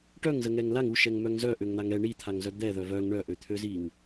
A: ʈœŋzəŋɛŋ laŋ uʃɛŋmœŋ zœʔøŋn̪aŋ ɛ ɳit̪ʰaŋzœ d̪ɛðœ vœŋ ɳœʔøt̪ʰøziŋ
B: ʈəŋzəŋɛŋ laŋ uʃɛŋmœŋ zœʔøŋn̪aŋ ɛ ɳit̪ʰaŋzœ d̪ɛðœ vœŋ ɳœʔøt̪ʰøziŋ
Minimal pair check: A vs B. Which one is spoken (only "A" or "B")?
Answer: A